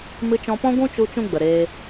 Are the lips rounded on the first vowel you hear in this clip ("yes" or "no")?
no